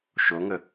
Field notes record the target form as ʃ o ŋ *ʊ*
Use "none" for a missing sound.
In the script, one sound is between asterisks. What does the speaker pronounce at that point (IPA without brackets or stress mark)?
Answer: ə